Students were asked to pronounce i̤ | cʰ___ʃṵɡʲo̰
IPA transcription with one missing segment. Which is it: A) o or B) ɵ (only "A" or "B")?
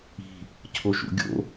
A